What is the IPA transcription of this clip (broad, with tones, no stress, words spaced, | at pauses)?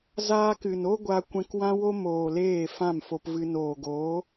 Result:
zaː˧kɨ˨no˦ ɡʷa˧kʷɛ̃˧kwã˦wo˦ moː˨leː˦˨ fã˦˨mfo˧pvɨ˧ noː˨ɡoː˨˦